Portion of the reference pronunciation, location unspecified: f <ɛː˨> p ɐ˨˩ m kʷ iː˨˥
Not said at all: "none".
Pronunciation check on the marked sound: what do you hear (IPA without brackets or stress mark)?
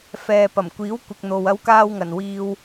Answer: ɛː˨